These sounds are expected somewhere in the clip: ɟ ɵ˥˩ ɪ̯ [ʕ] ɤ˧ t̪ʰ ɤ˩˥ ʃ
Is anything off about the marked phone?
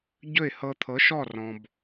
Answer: yes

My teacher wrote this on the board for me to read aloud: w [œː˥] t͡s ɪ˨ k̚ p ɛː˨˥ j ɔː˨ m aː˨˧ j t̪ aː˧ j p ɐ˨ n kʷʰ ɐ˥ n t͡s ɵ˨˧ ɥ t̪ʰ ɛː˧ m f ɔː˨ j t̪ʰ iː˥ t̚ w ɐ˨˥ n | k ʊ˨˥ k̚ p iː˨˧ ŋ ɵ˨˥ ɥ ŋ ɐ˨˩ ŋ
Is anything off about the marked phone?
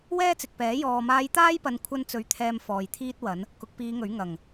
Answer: yes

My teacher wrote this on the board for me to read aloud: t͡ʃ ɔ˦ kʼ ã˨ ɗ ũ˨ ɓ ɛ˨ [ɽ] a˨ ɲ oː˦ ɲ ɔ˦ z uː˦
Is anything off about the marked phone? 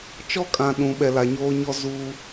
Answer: yes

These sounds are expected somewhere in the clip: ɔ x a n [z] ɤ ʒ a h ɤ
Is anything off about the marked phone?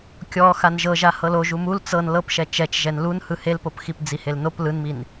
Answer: yes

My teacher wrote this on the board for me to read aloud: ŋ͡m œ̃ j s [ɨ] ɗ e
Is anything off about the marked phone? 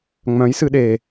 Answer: no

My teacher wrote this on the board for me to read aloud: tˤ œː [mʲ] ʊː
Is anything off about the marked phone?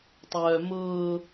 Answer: yes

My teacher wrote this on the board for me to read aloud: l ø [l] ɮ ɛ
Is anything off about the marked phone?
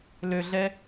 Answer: yes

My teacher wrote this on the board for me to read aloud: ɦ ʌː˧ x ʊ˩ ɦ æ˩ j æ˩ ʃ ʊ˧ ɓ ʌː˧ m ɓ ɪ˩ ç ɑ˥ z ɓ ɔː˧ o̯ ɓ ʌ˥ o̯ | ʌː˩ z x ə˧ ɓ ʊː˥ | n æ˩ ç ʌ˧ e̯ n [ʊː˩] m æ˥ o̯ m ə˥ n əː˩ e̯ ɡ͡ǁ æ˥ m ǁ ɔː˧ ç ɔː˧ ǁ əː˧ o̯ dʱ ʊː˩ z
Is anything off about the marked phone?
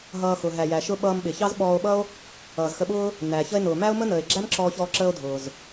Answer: no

